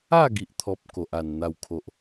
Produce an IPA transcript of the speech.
a˥˧ɡi˨ʔt̪ʰɔ˨p̚ ko˨ʔa˨˩n n̪a˥˧wkʰo˦ʔ

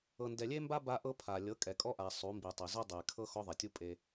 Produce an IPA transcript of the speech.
ɤ˨ndɛ˨lʲe˦mba˦ ba˦ʔɤ˦pʰa˨ lʲɤ˨˦kʼɛ˨kʼɔ˦ʔa˨ sˤu˨˦mbi˨ tˤe˨ zo˦dˤe˨kʰɤ˦ xɔ˦ðˤe˨tʲu˦ pʼe˦

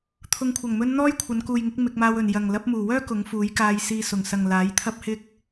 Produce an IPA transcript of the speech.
t̪ʰʊ˨˧ŋkʷʰɐ˨˩ŋmɵ˧n n̪ɔː˥jkʷʰɐ˨˧nkuː˨jŋɪ˨˥k̚ mɪ˧k̚maː˧wɵ˨n jɐ˨ŋ lɐ˨˥p̚muː˨˩wœː˥ kʊ˨˥ŋfuː˨˥jkaː˧jsiː˧ sʊ˨˩ŋsɐ˨ŋ laː˨˥jt̪ʰɐ˥p̚hɪ˥k̚

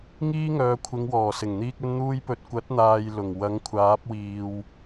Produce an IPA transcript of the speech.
ŋiː˥ŋœː˨˧kʷʰɪ˨˧ŋ wɔː˨˩sɪ˨˩ŋ n̪iː˨k̚ ɵ˧nn̪uː˧jpɵ˨t̚ kʷɐ˨˥t̚n̪aː˨j lʊ˨˩ŋ wɐ˨˥ŋkʷʰaː˨˥p̚wiː˨w

